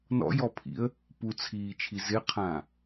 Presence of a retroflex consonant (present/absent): absent